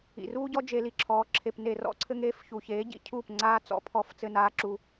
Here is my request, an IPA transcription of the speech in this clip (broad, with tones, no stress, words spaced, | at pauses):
ḭ˨ruː˦ɟɔ˦ d͡ʒe˧li˧ǁʰɔː˨˦ ǁʰe˨pne˨rɔ̰˧ǀʰɘ˧ŋ eː˧fçu˨çeː˨˦ ɟḭ˨cʰuː˦˨pŋ͡ǀaː˦ t͡sɔ̰˦pʰɔ˧f t͡sɘ˧naː˧ǁu˧